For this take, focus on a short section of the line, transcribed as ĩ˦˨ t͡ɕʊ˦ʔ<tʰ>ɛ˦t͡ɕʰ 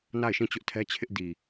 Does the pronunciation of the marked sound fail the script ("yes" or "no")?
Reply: no